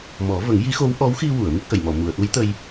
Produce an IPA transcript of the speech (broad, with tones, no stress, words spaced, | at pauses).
mɔ˨˩˦və˨˩˦ŋ ji˧˥xo˧˥w ʔɔ˧˥wxi˧wu˨˩˨ə̯ mi˦˥k̚ʔə˨˩˨jmɔ˨˩˨ mu˨˩˨ə̯ʔu˧˥jt̪ə˧j